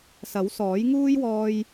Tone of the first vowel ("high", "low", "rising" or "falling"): rising